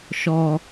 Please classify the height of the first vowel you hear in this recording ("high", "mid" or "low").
mid